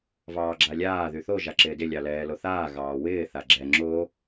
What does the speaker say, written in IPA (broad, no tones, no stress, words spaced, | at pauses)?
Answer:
vɑːɡ͡ǁalʲaː ðyθo ʒaǁɪːdɪ lʲɑlɛːloθaː ɣɑːwɪː θaɡ͡ǁɛ ŋ͡ǁo